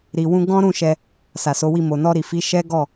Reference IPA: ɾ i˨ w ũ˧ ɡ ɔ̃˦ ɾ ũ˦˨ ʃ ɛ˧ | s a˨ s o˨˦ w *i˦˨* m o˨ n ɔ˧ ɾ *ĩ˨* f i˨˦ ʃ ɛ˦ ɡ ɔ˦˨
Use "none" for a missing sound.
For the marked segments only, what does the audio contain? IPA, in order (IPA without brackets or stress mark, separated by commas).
i˦˨, i˨